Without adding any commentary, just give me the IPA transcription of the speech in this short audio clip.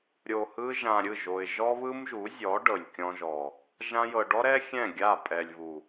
ɾʲ o˨ h ɯ˧ ʒ ã˨ ɾʲ ɯ˦˨ ʒ o˨ ɪ̯ ʒ ɔ˦ β ɯ˦ m ʒ u˨˦ zʲ ɔ˨˦ ɖ ɤ˨ lʲ kʲ ɔ̃˧ ʒ ɔ˨ | ʒ ã˧ j ɤ˨ ɖ ɔ˦ ɾ ɛ˦ xʲ ɛ̃˦˨ ɡʲ a˦˨ pʼ ɛ˨ lʲ β u˨

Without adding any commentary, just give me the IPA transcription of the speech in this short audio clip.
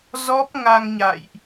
z ɔ˦˥ p̚ ŋ a˧ ŋ ɲ a̰˧˨ j ʔ

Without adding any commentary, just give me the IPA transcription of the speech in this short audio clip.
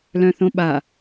l œ̃ θ õ ɓ a

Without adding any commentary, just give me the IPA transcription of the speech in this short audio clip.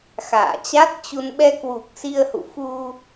x a̰ː˧˨ t͡ɕ a˦˥ t̚ t͡ɕ u˧ n ɓ ɛ˧ k w u˨˩ k̚ s i˧ ə̯ h ṵ˧˨ f u˧

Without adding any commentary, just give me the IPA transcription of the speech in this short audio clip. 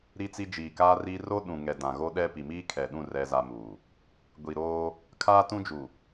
ɾ i˦ t͡s i˦ d͡ʒ iː˨ k aː˦ r iː˦ r o˦ ɗ ũ˨ ŋ ɛ˨ d ã˨ ɣ o˦ ɗ ɛ˦ p i˨ m iː˦ kʰ ɛ˨ ɗ ũ˦˨ r ɛ˦ z a˦ m uː˨ | ɡʷ i˨ ɾ oː˦ | kʰ aː˦ t ũ˦ d͡ʒ u˨

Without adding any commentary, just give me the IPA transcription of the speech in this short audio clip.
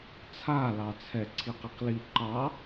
t͡sʰ a l ɑ t͡sʰ ɛ ǀʰ i q i q l i ǃ ɑ

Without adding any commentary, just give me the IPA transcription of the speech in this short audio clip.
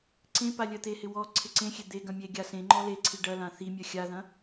ǀ ẽ p a lʲ ɜ t̪ e h ɪ w ɔ ǀʰ ɪ ǀ ẽ xʲ e d̪ e ɡ ɐ̃ mʲ e ɡʲ a s ẽ ŋ͡ǃ ɔ l e ǀʰ i ɖ ɐ l ã θ i mʲ ɜ xʲ a ð ɐ̃

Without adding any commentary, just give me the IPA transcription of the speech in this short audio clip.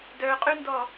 d œ qʼ y n d ɔ

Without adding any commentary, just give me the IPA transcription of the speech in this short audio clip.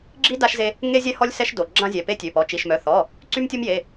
ɡ͡ǁ i˦ d a˦ ʃ z e˦ | ŋ e˦ zʲ ɛ˦ h ɔ˦ lʲ s ɛ˦ ʃ d o˩˧˩ ɡ͡ǁ ã˦ zʲ ɛ˩˧˩ p e˦ tʲ ø˩˧˩ p ɔ˩˧˩ t͡ʃ i˩˧˩ ʃ m œ˩˧˩ θ ɔ˩˧˩ | ǀ y˦ m tʲ o˦ m j e˩˧˩

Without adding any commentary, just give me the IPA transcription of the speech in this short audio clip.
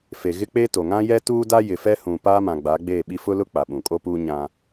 f e˨ ɣ ɪ˦ k͡p eː˦ t o˨ ŋ ã˦ j ɛ˦ t uː˦ d a˦ j ɪ˨ f ɛ˦ h ũ˨ p aː˦ m ã˨ ɡ͡b a˨˦ ɡ͡b eː˦˨ ɓ i˦ f ʊ˦ l ʊ˦ k͡p a˨ ɓ ũ˨ kʼ o˦ p uː˦ ɲ ã˦

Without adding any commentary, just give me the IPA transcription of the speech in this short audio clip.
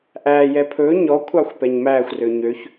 ʔ æ j ɛ pʰ ɵ ɲ ɔ kʷʰ ɑ xʷ p ɛ ɲ m æ xʷ r ø ɲ ø ç

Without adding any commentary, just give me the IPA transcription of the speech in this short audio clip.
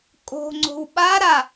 kʼ o̤ ŋ͡ǀ o̤ w ɓ a ɾ a

